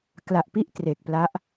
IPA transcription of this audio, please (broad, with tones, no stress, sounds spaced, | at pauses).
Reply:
k l a˨˩ ʔ p i˦˥ ʔ t r e˨˩ k̚ p l a˦˥ ʔ